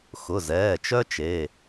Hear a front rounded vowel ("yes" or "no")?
yes